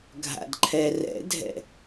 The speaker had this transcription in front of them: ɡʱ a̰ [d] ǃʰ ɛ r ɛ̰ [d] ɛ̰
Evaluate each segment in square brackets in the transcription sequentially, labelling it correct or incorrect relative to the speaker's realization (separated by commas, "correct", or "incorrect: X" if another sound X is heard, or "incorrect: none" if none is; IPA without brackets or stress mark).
correct, incorrect: dʱ